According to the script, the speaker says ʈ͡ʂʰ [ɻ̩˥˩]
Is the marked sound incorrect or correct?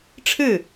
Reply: correct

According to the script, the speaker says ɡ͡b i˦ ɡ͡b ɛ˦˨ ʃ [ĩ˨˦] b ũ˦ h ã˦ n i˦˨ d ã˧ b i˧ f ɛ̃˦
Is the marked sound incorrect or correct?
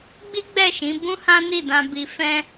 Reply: correct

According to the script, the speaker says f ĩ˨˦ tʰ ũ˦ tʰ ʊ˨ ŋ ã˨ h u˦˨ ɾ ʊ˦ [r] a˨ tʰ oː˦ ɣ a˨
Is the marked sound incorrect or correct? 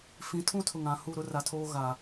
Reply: correct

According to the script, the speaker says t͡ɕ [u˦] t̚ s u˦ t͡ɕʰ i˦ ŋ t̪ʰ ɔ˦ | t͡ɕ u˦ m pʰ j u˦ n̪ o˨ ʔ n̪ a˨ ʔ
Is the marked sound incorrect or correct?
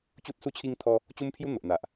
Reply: correct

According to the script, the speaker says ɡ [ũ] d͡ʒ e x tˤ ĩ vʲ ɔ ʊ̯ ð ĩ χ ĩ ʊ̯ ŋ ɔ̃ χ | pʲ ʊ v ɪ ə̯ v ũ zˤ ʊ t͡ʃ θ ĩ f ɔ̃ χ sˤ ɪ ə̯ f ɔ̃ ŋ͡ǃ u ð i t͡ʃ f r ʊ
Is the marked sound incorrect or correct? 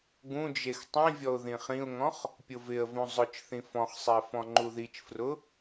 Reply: correct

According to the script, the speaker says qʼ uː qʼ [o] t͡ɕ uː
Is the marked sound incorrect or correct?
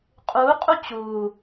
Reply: incorrect: u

